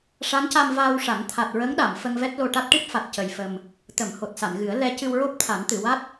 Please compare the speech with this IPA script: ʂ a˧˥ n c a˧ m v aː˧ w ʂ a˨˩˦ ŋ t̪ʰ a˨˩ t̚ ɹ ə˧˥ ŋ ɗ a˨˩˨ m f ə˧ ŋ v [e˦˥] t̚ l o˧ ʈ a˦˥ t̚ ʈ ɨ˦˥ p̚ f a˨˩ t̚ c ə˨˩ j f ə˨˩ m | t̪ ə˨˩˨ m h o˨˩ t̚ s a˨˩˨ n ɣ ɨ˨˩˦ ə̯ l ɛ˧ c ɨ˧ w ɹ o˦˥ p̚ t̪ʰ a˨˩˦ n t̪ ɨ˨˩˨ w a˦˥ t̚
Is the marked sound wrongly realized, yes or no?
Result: yes